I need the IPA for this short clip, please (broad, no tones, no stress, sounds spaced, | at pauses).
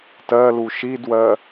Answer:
t ɜ l u ʃ i d w ɜ